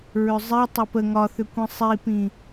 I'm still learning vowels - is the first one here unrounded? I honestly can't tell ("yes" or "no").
no